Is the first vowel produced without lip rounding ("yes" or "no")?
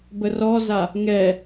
yes